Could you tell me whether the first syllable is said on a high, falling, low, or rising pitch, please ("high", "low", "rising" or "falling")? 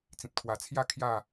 low